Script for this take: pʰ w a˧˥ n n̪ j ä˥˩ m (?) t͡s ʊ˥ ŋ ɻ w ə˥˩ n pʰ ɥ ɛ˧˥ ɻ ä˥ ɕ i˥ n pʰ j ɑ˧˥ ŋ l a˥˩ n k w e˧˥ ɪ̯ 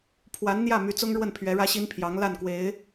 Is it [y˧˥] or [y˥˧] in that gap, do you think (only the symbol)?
y˧˥